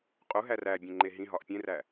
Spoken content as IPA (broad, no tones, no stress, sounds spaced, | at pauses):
qʼ u ɦ æ r æ bʲ ẽ ŋ͡ǃ e ɦ ĩ ɦ ɒ ʔ pʲ ẽ r æ